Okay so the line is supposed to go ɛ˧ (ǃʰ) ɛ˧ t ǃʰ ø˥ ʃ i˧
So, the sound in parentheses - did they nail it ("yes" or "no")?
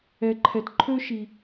yes